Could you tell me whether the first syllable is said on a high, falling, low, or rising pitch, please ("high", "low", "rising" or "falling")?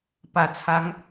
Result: low